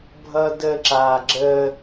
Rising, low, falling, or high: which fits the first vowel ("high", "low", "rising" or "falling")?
high